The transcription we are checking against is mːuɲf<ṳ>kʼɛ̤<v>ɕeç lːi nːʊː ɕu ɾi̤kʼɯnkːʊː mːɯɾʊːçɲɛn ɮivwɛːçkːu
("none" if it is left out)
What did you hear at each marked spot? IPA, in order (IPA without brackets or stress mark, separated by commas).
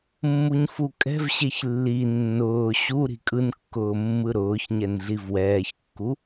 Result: u, v